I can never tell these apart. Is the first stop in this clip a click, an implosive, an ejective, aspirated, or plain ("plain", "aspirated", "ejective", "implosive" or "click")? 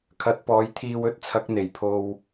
aspirated